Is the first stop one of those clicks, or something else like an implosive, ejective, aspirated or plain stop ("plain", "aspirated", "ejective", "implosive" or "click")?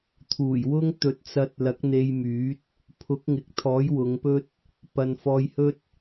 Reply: aspirated